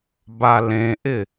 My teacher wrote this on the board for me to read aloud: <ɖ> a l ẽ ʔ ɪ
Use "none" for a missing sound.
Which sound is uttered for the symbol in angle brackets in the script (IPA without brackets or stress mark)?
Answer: b